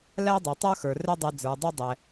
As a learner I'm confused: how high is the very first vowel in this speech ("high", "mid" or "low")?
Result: low